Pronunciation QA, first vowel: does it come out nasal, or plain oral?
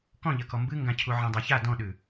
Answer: nasal